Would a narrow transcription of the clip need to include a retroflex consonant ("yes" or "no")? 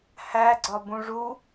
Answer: yes